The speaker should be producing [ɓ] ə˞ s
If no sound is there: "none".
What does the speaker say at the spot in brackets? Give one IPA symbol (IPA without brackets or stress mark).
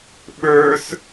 ɓ